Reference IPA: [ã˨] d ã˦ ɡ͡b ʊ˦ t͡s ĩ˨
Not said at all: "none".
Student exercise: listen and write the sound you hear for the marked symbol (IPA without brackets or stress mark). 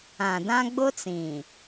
ã˨